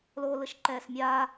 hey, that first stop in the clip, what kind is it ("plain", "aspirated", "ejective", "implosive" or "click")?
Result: click